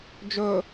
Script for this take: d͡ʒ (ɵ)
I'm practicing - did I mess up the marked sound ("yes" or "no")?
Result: no